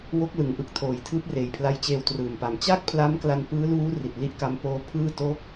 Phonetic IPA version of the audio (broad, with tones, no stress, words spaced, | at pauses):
wo˦˥k̚lɯ˩˦ŋʔɯ˨˩k̚tʰoː˨˩j tʰɯː˦˥p̚reː˨˩jpʰla˦˥jt͡ɕeː˧w trɯː˨˩mpa˨˩m t͡ɕa˥˩k̚pʰla˦˥mkla˧n pɯː˦˥luː˦˥ ri˨˩t̚li˥˩ʔka˦˥m poː˦˥pʰɯː˥˩ to˦˥k̚